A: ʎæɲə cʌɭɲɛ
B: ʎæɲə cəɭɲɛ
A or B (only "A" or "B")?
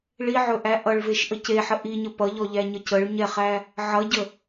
B